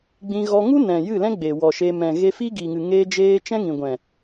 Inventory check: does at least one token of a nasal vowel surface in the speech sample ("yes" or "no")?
yes